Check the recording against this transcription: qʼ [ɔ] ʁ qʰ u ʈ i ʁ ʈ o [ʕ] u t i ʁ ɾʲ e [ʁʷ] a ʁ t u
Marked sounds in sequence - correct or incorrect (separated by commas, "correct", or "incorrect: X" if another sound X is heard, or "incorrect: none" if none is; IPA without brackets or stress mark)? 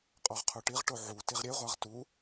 correct, correct, correct